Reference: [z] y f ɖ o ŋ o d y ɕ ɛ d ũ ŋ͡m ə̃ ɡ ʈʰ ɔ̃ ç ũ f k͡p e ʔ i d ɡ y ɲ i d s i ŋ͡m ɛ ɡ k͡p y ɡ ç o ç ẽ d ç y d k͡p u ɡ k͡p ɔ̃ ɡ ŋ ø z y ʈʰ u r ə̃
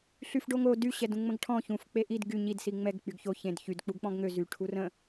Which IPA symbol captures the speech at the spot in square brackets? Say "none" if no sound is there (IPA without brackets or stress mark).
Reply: ɬ